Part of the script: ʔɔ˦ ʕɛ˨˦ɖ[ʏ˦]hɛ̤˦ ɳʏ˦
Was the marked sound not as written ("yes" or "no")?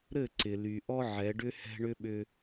no